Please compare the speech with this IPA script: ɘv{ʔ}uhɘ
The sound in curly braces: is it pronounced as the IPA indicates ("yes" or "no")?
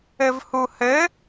no